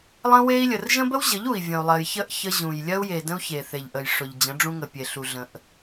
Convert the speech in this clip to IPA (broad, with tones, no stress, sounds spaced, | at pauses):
lˠ ə̃˦ w e˦ i̯ lʲ ə˨ r ʒ ə̃˦ b ə˦ w ʑ ə˨˦ ʎ u˨ i̯ vʲ ə̃˨ u̯ lˠ ɜ˨ j ç ə˦˨ ʔ ç ə˦ ʑ ũ˨ j lʲ ɜ˦ u̯ j e˨ d ə̃˦ u̯ ç e˨ θ e˨ ʎ ʔ ə˨ j ʂ ʊ˨ ʎ d͡ʑ ə̃˨˦ ɖ͡ʐ ũ˦ ŋ ə˨ pʲ e˨ ɬ u˨ ɮ ə̃˨ ʔ